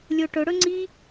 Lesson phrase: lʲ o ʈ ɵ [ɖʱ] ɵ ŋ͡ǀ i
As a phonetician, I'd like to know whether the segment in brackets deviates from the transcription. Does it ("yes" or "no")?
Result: yes